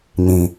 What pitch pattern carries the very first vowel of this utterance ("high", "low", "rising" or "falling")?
low